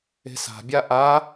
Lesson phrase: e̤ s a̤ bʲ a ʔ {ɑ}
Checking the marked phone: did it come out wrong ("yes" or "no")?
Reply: yes